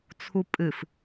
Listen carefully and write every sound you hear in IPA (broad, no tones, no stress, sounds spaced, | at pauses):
t͡sʰ u pʼ ɨ f